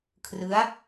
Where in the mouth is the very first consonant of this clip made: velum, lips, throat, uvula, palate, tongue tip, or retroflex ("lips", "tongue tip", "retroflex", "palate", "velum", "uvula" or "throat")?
velum